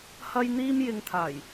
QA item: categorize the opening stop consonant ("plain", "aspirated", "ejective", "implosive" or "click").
aspirated